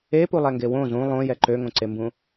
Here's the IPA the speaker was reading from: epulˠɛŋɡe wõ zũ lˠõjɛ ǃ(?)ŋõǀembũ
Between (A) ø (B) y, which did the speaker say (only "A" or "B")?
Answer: A